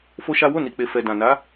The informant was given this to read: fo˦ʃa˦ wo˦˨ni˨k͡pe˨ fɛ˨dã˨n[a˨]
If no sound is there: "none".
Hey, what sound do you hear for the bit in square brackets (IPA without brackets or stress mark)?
a˨˦